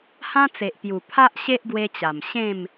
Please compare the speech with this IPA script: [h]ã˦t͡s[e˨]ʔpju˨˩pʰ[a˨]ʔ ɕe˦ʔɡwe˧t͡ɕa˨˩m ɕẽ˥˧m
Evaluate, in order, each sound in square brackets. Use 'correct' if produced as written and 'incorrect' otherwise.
correct, correct, incorrect

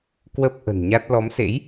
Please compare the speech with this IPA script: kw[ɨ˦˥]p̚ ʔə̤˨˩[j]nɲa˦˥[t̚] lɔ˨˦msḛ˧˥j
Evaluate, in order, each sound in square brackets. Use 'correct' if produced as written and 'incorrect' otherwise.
incorrect, incorrect, correct

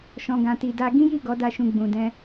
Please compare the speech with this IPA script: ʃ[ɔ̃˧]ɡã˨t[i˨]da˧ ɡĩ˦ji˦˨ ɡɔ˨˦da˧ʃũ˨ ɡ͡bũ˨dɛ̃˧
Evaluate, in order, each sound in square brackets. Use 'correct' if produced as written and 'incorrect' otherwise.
incorrect, correct

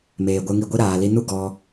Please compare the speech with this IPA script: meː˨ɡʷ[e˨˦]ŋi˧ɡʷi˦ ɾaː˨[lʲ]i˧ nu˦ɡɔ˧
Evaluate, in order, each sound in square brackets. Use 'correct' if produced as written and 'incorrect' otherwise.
incorrect, incorrect

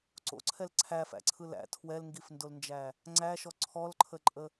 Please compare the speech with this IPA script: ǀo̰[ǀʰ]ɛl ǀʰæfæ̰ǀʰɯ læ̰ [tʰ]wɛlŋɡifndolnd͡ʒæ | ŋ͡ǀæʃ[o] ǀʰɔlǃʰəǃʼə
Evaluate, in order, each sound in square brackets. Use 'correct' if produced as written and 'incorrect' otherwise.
correct, correct, incorrect

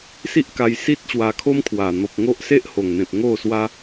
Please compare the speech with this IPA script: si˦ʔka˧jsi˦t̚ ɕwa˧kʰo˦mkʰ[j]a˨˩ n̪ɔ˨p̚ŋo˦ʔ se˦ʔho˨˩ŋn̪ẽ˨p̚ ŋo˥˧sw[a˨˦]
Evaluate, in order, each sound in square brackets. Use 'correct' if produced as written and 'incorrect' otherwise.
incorrect, incorrect

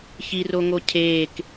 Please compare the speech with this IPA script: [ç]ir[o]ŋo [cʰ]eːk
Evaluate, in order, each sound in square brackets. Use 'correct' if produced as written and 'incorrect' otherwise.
correct, correct, correct

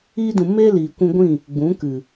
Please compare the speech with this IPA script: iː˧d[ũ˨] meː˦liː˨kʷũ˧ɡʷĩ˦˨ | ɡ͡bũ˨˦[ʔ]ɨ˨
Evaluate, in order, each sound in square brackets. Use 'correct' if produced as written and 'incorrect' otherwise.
correct, incorrect

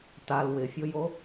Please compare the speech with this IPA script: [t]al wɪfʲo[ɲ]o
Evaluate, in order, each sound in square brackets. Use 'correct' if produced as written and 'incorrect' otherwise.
correct, incorrect

